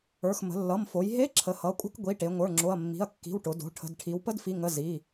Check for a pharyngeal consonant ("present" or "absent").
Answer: absent